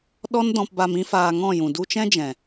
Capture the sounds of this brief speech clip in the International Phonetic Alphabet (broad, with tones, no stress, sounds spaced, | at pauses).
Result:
ɗ ɔ˦ n d ɔ̃˧ p b a˧ m ĩ˦ f aː˧ ŋ ɔ̃˦˨ j ũ˨ d u˧ t͡ʃ ɛ̃˦ d͡ʒ ɛ̃˨